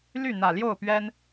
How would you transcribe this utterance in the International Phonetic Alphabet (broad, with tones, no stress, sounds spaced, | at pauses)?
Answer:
l y˥˨ n̪ ä˨˩ l j o˥˨ ʊ̯ p ɥ ɛ˦ n